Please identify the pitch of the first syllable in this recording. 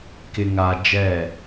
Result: low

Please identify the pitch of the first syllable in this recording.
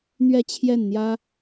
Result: falling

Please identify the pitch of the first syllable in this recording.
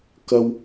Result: high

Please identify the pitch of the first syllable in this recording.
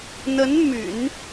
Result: rising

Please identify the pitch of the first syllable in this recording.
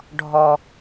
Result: low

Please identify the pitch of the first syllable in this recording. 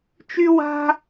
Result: high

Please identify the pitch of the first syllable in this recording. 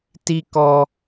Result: high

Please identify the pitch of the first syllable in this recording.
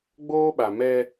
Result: high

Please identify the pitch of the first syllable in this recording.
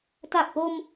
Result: low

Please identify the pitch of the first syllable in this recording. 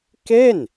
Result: falling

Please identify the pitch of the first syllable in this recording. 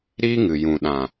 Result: high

